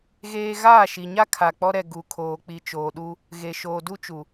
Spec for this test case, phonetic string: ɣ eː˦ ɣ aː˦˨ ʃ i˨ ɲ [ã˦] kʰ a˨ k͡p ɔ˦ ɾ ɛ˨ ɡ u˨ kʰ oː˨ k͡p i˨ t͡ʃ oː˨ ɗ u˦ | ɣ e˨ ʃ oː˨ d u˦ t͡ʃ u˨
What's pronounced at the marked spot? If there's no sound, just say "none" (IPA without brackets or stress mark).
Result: a˦